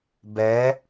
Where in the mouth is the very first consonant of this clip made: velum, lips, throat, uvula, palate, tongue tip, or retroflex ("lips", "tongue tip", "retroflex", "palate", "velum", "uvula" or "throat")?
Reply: lips